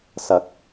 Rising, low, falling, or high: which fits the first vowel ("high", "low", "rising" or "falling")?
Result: rising